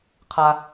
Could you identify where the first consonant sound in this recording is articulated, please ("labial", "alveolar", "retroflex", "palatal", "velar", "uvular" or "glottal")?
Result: uvular